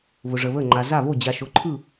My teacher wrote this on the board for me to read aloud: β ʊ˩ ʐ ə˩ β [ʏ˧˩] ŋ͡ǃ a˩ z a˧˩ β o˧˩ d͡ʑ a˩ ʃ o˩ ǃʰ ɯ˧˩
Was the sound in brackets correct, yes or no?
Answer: no